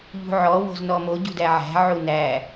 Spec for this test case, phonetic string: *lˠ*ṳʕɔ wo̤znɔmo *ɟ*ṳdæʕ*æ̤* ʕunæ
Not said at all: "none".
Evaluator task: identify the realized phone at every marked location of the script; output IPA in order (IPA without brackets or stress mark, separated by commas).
ʎ, ɟ, æ̤